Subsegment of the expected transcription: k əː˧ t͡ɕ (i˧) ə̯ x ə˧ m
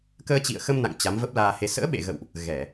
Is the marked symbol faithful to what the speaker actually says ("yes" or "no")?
no